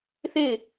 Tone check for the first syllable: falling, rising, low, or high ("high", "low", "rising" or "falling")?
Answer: falling